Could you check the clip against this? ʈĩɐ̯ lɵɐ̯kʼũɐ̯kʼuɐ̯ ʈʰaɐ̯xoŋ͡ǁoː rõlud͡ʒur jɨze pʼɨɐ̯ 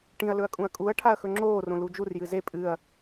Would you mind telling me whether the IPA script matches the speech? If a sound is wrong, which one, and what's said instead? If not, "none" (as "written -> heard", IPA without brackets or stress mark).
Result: o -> ɵ